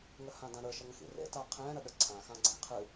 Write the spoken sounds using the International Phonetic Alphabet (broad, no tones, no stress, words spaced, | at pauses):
ŋəhãdãɾə˞ ʃəŋə̃xḭrḛ taqʰɛ̃ ɾəɗəǀʰã xãɡ͡ǀĩ qʰɨ